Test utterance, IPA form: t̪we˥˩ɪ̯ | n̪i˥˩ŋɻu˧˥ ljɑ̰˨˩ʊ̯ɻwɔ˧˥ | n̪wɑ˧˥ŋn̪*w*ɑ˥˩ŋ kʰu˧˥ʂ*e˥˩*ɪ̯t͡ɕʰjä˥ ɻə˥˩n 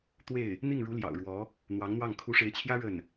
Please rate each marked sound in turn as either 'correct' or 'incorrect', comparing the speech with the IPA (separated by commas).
correct, incorrect